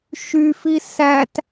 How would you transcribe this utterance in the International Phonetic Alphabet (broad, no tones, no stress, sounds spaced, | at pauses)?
ʃ y f i s æ t